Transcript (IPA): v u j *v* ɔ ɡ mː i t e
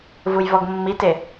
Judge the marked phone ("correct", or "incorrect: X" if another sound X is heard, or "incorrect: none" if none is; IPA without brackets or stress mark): correct